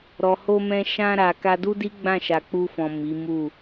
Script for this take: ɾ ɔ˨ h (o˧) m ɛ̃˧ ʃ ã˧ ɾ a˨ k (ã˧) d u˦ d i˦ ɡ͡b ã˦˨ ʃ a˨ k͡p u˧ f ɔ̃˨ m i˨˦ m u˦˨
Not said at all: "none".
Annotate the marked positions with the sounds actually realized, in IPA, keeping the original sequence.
o˧, a˧

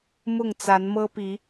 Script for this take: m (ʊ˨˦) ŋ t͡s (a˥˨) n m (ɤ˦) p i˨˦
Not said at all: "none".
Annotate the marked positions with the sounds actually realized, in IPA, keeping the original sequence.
ʊ˥˨, a˨˦, ɤ˦

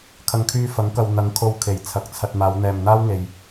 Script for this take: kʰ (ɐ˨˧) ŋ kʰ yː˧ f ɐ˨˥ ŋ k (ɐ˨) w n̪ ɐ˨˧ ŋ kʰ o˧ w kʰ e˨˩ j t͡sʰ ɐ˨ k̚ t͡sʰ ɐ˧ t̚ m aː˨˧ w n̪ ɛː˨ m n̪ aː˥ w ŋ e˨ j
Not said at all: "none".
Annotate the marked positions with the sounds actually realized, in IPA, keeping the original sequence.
ɐ˨, ɐ˨

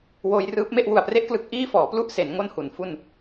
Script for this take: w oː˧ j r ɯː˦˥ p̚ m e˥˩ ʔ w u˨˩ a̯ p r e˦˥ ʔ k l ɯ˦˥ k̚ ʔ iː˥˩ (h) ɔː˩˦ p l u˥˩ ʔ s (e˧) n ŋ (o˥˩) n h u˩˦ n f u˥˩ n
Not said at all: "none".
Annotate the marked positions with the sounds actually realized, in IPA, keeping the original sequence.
f, e˩˦, o˥˩

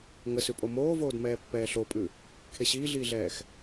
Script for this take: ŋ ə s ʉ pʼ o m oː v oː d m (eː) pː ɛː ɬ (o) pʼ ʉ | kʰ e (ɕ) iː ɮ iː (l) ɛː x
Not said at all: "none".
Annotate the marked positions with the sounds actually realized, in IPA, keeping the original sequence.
ɛː, o, ɕ, ɮ

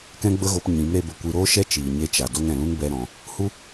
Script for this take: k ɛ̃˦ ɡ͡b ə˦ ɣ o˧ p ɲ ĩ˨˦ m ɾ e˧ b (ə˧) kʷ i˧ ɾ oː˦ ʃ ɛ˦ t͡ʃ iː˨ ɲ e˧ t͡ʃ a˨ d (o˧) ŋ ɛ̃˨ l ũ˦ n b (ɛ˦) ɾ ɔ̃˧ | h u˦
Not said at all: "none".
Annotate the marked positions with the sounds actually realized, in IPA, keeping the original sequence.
ə˧, o˧, ɛ˦

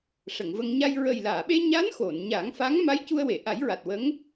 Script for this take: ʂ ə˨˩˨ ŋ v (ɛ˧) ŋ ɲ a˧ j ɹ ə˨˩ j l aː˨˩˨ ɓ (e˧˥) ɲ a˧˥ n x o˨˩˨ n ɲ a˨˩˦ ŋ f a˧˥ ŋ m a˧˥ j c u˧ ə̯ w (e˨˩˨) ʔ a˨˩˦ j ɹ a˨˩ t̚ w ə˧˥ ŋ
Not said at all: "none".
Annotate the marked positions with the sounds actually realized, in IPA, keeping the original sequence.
ə˧, e˧, e˨˩˨

